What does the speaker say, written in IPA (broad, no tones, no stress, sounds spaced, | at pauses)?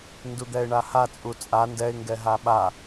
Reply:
n d u d̪ ɛ ɪ̯ ɳ a h a t͡sʼ u t͡sʼ a n d ɛ ɪ̯ ŋ ɡ ɛ ɦ a ɓ a